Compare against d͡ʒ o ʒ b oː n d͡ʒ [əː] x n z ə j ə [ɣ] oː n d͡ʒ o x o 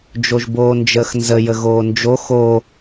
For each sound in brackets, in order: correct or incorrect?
correct, correct

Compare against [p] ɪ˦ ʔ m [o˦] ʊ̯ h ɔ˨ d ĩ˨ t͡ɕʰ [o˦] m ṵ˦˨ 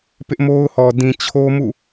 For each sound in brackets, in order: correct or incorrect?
correct, correct, correct

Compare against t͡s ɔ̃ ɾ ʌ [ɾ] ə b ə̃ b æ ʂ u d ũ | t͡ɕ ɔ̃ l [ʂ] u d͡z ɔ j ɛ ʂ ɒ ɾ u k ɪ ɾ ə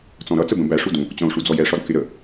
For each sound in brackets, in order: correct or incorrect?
incorrect: t͡s, correct

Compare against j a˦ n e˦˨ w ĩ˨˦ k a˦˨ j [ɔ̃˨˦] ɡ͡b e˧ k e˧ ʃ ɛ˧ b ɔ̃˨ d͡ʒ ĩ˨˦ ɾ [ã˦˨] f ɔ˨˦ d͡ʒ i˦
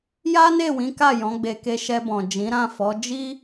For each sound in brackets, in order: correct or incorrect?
correct, correct

